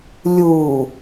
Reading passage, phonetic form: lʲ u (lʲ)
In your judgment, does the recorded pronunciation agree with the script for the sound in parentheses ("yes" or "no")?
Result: no